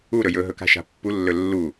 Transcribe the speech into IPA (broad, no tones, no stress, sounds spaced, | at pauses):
u ɾ ɵ j ɵ ɦ ɵ k a̤ ʃ a̤ pː u lː ɵ lː u